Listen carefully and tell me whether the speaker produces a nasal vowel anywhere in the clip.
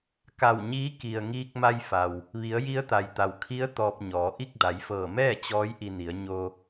no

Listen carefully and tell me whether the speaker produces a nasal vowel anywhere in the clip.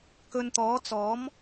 no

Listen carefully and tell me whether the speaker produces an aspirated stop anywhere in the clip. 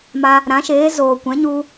no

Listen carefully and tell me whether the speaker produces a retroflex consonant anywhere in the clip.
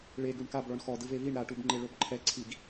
yes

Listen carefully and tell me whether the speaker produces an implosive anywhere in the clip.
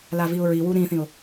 no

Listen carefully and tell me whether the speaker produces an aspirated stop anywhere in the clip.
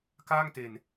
no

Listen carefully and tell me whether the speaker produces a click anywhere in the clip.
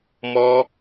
no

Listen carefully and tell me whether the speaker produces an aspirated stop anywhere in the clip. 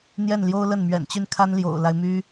yes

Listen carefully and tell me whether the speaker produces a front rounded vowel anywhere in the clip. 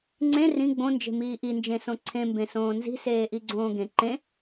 no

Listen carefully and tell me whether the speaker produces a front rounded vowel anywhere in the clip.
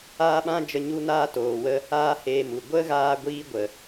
no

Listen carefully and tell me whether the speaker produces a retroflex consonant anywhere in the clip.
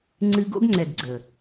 no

